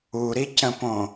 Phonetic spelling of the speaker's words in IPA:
u ɾ i c ə̃ p õ

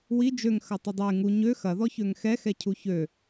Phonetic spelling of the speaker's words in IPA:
w i d͡ʒ ø ŋ x ɐ tˤ ə dˤ e ŋ u ɲ ø x ɐ ð ɔ ç ø ŋ x ɛ x ɛ cʰ u ç ø

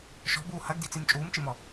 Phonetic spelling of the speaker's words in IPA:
ʃ ɔ̤ b uː h ɐ ɡ d i t͡s i m t͡ʃʼ uː m t͡ʃ i m ɔ

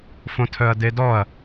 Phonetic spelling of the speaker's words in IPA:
f õ tʰ œ ɐ̯ d e d ɔ ɐ̯

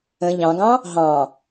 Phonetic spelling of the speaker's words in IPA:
ə̃ ʎ ɑ̃ ɡ ɑ̃ | ɦ ɑ̃

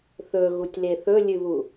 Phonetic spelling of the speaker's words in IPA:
θ ɵ ɣ u tʲ l e θ ɵ lʲ ɨ β u

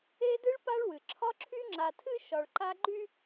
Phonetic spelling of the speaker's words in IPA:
e˥ d ɨ˥ ɭ p a˥ ɭ w ɨ˩ ǁʰ ɒ˥ ǁʰ y˥ ŋ͡ǁ a˨ tʰ ɨ˦ ʃ ɒ˨ ɭ ǃ a˥ ɡ͡ǃ y˦

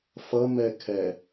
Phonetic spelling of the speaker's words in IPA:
f ʌ m ɛ kʰ ɛ

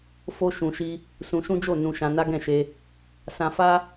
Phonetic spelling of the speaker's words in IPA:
f o˦ ʃ ũ˧ ʃ i˦ | s ũ˧ ʃ ũ˦ d͡ʒ o˦˨ n ũ˧ ʃ ã˧ n a˦ ɡ ɛ̃˦˨ ʃ e˧ | s ã˧ f a˦

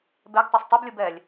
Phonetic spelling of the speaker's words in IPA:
b ɛ ɡ tˤ o sˤ tˤ u b lʲ u b ɛ lʲ

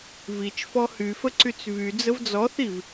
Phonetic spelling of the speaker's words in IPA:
v i t͡ʃ f ɔ h y f ə ǀ y t͡s v y d͡z ə v d͡z ɔ θ i v

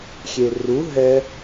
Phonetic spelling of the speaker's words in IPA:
xʲ e r u ɦ ɛ

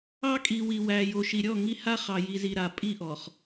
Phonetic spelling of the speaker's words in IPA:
ɑ˦ kʼ i˨ w i˨ w æ˨ j o˨ ʃ i˨ ɾʲ ɔ˦˨ ŋ i˦ h a˦ χ ɑ˨ j i˨ z i˨ ɾ a˨ pʼ i˦˨ ʔ ɔ˨ χ

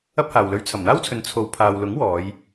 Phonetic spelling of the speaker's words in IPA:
ɐ˥ p̚ h aː˨ w l ɵ˧ ɥ t͡sʰ ɐ˨˩ m n̪ aː˥ w t͡sʰ ɵ˨ n t͡sʰ o˨˧ w pʰ aː˨ w l ʊ˨˥ ŋ w ɔː˨˧ j

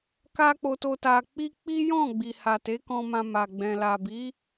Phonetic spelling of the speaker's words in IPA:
k a˦ k͡p o˧ t o˧ t a˧ k͡p i˦ k͡p i˦ j ɔ̃˦˨ ɡ͡b i˨ h a˨ t e˨˦ k ɔ̃˧ m ã˧ m a˨ ɡ͡b ɛ̃˨ l a˨ b i˨˦

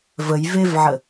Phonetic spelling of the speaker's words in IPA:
v ə j v e v ʕ ə

